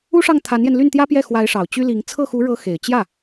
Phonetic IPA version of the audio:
u˥ʂɑ˥˩ŋt̪ʰa˧˥njɛ˧n ly˥˩nt̪jä˥pjɛ˥˩ xwa˧˥ɪ̯ ʂɑ˨˩ʊ̯t͡ɕy˥li˧˥ŋ t͡sʰɤ˥˩xu˧˥ɻɤ˧˥ xe˨˩ɪ̯ t͡ɕjä˥˩

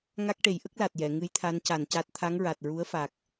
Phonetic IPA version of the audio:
ŋa˦˥k̚ʈe˨˩˦j ʔə˦˥k̚la˨˩t̚jɛ˨˩˨ ŋɨ˧˥jt̪ʰa˧˥nca˨˩nca˦˥t̚ t̪ʰa˧˥ŋɹa˨˩t̚ɹu˧˥ə̯fa˨˩k̚

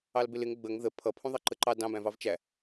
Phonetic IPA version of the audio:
ɑlbɪlɪŋ ɡ͡bəŋ ðə pʰʌpʰũ ðˤɑǃəǃɑ dɑ̃bæ̃vɑv t͡ʃæ

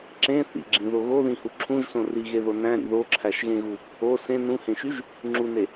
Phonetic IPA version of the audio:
ǁẽ θḭɡ͡ǁĩðo ɣoðĩhu ǁʰũʒsõ riɣeðo næ̃ɾḭ ðoǁʰæʃɣẽɣu | o sẽ nũhẽʃyʒ | ŋ͡ǁune

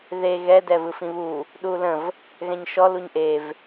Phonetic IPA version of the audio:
ðe ɣɛ dɛvɯfĩβu | ɗuːlə̃v | ɣɛ̃ɲʃɔ luɲʔev

